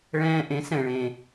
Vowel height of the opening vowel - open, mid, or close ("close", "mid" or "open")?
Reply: mid